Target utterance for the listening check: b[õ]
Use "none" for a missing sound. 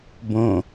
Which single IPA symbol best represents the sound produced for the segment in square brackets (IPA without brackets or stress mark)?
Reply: õ